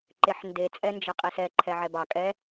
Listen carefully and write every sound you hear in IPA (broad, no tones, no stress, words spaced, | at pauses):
ǃeħnde t͡sʼɛnd͡ʒəqʼisɛ ǃʰɛʕɛbɑ kʼɛ